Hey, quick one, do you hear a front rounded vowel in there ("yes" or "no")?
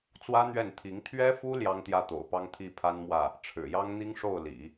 no